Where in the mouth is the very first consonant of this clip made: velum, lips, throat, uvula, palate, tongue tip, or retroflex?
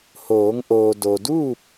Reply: throat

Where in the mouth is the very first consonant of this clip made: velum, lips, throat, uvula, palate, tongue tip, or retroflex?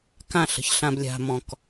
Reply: velum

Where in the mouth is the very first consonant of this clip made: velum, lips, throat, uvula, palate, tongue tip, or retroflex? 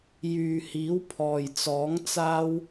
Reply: palate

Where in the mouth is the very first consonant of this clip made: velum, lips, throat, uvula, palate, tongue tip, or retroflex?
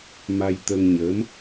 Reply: lips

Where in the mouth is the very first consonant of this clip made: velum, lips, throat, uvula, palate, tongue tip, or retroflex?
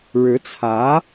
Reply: retroflex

